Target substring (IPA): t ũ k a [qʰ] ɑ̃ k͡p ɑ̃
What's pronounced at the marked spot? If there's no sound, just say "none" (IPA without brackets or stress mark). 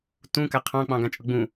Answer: qʰ